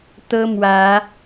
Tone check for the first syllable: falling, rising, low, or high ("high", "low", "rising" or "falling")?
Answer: high